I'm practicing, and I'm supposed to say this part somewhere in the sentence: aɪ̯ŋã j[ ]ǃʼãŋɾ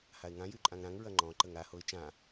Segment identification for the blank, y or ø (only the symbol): y